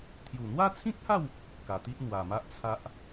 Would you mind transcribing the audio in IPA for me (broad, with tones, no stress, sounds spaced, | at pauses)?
t̪ʰ j u˨˩ n̪ w a˦ t͡sʰ ĩ˦ k̚ h a˥˧ w | k a˨˩ t̪ i˦ ʔ n̪ w a˨˩ m a˦ ʔ t͡sʰ a˦ ʔ